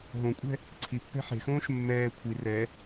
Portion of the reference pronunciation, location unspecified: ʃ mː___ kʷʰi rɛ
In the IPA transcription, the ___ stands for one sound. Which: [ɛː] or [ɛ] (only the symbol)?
ɛː